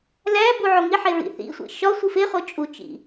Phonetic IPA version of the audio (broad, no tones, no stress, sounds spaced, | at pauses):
l æ b u ʕ o ŋ i ħ e ɹ ḭ θ ḭ sʷ ḭ ʃ ɒ sʷ i f e χ o t͡ʃʼ u t͡ʃ ḭ